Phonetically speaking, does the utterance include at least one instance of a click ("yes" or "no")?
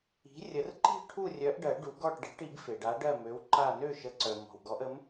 yes